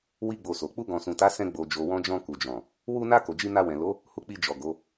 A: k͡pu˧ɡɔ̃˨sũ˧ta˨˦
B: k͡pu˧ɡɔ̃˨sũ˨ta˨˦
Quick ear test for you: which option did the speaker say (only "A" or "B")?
B